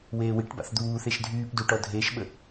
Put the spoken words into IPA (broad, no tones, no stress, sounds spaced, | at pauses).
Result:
w eː w i ʈ b a̰ θ d̪ uː θ e ʃ dʱ yː p d u ʈ ɔ dʱ eː ʃ ɓ ə